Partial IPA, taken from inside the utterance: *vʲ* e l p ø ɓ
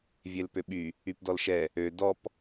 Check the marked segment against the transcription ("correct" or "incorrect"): correct